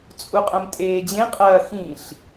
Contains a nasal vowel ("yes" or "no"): yes